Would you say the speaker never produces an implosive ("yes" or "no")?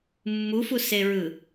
yes